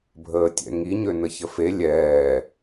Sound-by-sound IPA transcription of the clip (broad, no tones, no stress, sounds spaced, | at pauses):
bʱ əː tʲ ɛ̰ ŋ i ɲ ø n ə ç ə f e lʲ ɛː